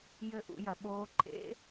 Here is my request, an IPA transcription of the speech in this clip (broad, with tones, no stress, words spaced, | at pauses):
jɘ˦˥ʔṵ˩˥jɐ˩˥ɓoː˦˥ ǃʰḛ˦˥